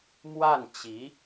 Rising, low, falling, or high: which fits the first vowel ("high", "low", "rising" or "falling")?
falling